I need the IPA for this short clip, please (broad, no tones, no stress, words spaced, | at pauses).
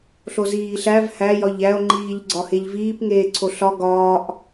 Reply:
ɬoziːɬæv hæ jɒʎæo̯ŋ͡ǃiːʎ ɡ͡ǀɒheʎviːp ŋeːǀʰoɬɒ ɡɒːʔ